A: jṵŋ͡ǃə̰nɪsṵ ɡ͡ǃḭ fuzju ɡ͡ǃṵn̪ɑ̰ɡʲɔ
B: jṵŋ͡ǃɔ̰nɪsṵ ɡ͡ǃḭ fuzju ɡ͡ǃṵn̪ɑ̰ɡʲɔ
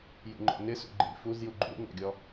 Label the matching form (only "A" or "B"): B